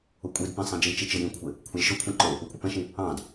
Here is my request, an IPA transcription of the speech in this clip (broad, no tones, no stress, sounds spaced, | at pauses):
ʊ kʷʼ i d p ĩ sˤ ĩ d͡ʒ i t͡ʃ i t͡ʃ ɪ j ĩ kʷʰ ɪ | kʷʰ ɑ lʲ ʃ ʊ kʷʰ ĩ ǃ ʊ | ʊ kʷʼ ɪ p ɛ̃ ʃ ĩ | ɑ̃ d